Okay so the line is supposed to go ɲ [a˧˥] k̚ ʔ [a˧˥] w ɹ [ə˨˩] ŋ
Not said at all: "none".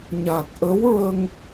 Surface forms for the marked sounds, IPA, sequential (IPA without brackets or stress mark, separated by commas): a˨˩, ə˧˥, ə˧